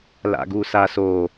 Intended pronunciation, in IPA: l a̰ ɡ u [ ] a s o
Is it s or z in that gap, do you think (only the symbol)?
s